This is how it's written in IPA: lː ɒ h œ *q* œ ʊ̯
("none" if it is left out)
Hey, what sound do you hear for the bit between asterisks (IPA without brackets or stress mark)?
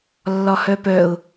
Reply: p